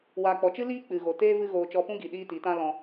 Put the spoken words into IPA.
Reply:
w aː˨ k͡p ɔ˨ t͡ʃ ɨ˦ l iː˦ k͡p ɨ˨ ɣ o˨ t eː˦ v ɨ˦ ɣ oː˧ t͡ʃ ɔ˧ p ũ˦ ɡ i˨ ɗ iː˦ t i˨˦ t ã˦ l ɔ̃˧

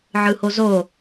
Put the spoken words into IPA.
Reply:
ʕ ɯ h o z o

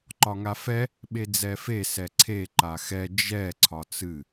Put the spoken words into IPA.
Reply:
ǃ ɒ ŋ a f ɛ | ɓ e d͡z ɛ f e s ɛ ǀʰ e ǃ a x ɛ d͡ʒ ɛ ǀʰ ɒ t͡s ɨ

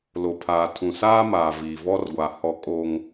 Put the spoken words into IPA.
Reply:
l o˨ pʰ aː˨ tʰ ũ˨ s aː˦ m aː˨ v iː˨ v ɔ˦ r ɡʷ a˨ h ɔ˨ kʼ o˦ ŋ

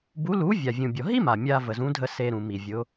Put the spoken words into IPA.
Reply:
b u˨˥ l u˨˥ vʲ a˩ vʲ ũ˩ bʲ ɔ˩ ɦ i˥ m a˩ mʲ a˧ v ə˩ z ũ˨˥ dʱ ə˧ s e˧ ɾ ũ˩ m i˩ vʲ ʊ˨˥

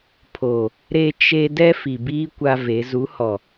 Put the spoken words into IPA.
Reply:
pʰ o˨ | ɾ e˦ t͡ʃ e˦ d ɛ˦ f i˨ b iː˦ kʷ a˦ v e˨˦ z u˨˦ h ɔ˨

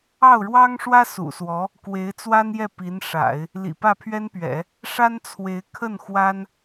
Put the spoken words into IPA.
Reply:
ɑ˥˩ ʊ̯ ɻ w ɑ˥ ŋ ʂ w ä˥ s ṵ˨˩ s w ɔ˧˥ | k w e˧˥ ɪ̯ t͡s w a˥ n j ɛ˥˩ p i˧˥ n ʂ a̰˨˩˦ ɪ̯ | l ḭ˨˩ p ä˥˩ pʰ ɥ ɛ˥ n p ɥ ɛ̰˨˩˦ | ʂ a˥ n t͡sʰ w e˧˥ ɪ̯ kʰ ə˥˩ n x w a˥ n

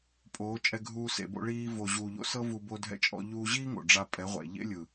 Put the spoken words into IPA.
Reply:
pʼ oː˨˦ t͡ʃʼ ɛ˧ ɡʱ uː˧ s ḛ˨ b o̰˧ ɭ iː˧ v o˨ ʑ uː˨ ʎ o̰˧ s ɤ˦ v u˧ b o˧ dʱ ɛ̰˧ t͡ʃʼ ɔ̰˧ ʎ uː˧ ʑ iː˦ ŋ o̰˨ ɖ͡ʐ a˧ pʼ ɛ˨˦ ʁʷ ɛ̰˨ ʎ ḛ˦ lʲ ɯ˨

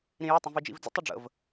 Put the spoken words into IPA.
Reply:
ɾ ĩ j ə tˤ ĩ v i d͡ʒ ḭ v d͡z ə̰ tˤ ɵ ɖ͡ʐ ə̰ v

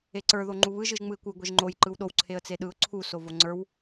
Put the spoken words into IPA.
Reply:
e ǀ ə˞ ð o ŋ͡ǃ u β ɯ ʒ ɯ ʒ ŋ͡m ɯ ɪ̯ kʷ ɯ ɡʷ e ʒ ŋ͡ǃ o j ǃ ɯ w ɗ o w ǀʰ e ə̯ t͡s e ɗ ɯ ʊ̯ ǀʰ u s o v o ŋ͡ǀ ə˞ w

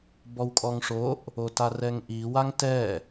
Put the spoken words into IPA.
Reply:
b ɔ w kʼ ɔ ŋ ʂ o ʔ | o t a r ɛ ŋ ʔ i w a ŋ t ɛ

